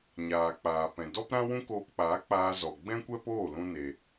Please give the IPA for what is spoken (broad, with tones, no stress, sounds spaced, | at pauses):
ɲ aː˨ k͡p aː˨ p ɛ̃˨ d ɔ˦ p ɾ ã˦ w ũ˦ k oː˧ p k͡p aː˨˦ k͡p aː˧ z ɔ˨ ɡ͡b ɛ̃˦ kʷ ɛ˦ p oː˦˨ l ũ˦ n e˧